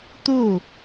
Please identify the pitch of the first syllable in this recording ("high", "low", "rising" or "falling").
falling